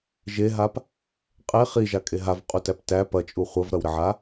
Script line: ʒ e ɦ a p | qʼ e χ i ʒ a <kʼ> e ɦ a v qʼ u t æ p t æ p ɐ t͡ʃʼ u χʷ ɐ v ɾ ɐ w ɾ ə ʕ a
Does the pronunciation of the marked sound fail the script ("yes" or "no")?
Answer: no